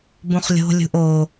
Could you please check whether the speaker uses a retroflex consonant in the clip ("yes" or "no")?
no